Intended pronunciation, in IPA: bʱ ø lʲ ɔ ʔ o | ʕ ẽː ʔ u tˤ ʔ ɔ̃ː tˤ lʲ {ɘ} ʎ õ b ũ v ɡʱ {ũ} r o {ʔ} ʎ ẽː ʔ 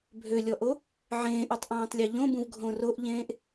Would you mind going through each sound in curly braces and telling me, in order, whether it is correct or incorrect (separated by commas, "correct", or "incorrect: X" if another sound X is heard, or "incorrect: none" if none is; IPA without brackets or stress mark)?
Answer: incorrect: e, incorrect: õ, correct